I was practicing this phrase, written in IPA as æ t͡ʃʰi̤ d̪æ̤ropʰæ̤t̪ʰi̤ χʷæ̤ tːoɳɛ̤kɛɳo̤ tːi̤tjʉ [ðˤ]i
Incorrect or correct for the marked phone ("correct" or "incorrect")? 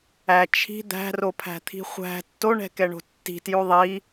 correct